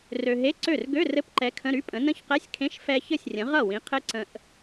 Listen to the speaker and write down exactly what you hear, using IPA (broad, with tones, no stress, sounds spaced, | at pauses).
r ø˧ ɦ e˧˥˧ ǀ ø˥˩ r ɡ ø˧˥˧ r ɘ˧˥˧ p ǃ ɛ˨˥ kʰ ə̃˧˥˧ ɾ y˧˥˧ pʼ ə̃˨˥ n ə̃˦˥ ç q ɛ˧˥˧ sʲ kʰ ẽ˧˥˧ ʃ f ɛ˧ ç ɘ˥˩ sʲ rʲ ə̃˨˥ ʁ ʌ˥˩ w ĩ˨˥ qʰ ɘ˦˥ ǀ ə̃˧ ʔ